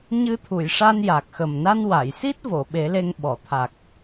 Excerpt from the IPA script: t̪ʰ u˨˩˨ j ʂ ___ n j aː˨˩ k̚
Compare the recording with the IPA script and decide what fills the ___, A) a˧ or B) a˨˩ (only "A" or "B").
A